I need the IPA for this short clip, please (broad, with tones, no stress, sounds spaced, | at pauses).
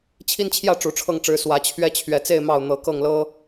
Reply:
t͡ɕʰ i˦ n t͡ɕʰ j ä˥˨ ʈ͡ʂ u˨˩ ʈ͡ʂʰ ɤ˥˨ ŋ ʈ͡ʂ ɻ̩˨˦ s w ä˨˦ t͡ɕʰ ɥ ɛ˦ t͡ɕʰ ɥ ɛ˨˩ t͡s e˥˨ ɪ̯ m ɑ˥˨ ʊ̯ n̪ ɤ˨˩ k ɤ˥˨ ŋ l ɤ˦